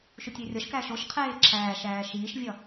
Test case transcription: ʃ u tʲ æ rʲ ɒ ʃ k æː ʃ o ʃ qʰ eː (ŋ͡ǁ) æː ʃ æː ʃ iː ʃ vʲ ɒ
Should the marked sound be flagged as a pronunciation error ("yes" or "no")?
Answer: yes